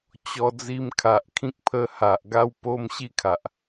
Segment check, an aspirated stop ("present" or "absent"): present